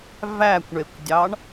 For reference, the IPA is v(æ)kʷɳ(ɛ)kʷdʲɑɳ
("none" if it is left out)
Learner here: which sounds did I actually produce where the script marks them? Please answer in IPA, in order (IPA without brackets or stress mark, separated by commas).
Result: æ, e